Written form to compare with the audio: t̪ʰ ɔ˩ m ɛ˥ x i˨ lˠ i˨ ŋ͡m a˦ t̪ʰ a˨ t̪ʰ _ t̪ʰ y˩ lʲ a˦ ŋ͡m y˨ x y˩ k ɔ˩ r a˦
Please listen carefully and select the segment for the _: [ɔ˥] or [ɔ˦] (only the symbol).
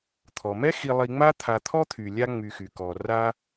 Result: ɔ˥